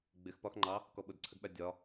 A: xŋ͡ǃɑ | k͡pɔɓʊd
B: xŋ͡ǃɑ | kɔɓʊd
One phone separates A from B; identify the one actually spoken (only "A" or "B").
B